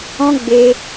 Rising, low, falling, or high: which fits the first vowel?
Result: high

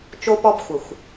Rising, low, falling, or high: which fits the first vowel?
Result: high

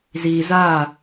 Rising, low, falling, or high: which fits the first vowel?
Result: low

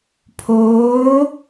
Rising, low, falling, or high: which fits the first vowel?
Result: rising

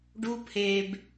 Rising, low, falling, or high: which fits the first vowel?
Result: high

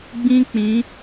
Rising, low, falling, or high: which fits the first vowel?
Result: high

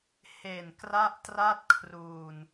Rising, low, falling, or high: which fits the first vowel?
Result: low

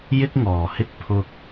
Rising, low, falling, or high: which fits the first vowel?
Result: high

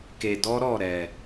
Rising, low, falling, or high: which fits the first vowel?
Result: low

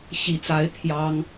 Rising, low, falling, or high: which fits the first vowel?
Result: low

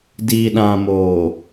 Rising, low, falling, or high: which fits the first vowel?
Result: low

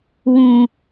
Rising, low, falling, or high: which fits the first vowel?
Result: low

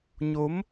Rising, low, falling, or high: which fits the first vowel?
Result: rising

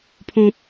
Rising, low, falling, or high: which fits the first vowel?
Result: low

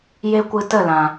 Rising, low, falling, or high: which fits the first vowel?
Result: high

